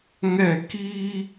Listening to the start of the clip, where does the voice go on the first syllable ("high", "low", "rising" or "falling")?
falling